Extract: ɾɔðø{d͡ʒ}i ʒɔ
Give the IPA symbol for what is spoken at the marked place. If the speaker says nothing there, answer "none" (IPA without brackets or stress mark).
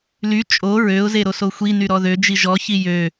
d͡ʒ